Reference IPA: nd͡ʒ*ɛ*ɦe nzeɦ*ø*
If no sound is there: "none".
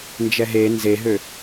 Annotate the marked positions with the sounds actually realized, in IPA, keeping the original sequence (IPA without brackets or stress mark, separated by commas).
ɛ, ø